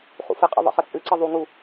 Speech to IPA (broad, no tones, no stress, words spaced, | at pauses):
χṵfəqʼə̰ ðˤə̰χət͡sʼɨǀə ðˤuŋu